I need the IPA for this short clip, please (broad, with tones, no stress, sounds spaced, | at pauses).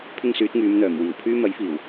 pʰ ɪ˥ ŋ s yː˨˥ t̚ ŋ yː˨˧ m n̪ œː˨˩ m w iː˨˩ w pʰ yː˥ m ɐ˨˥ j f iː˨˩ w